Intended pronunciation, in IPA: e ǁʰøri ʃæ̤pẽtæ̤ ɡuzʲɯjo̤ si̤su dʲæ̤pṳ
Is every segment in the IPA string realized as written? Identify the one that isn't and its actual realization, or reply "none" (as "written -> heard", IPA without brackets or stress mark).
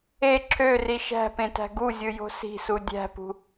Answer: none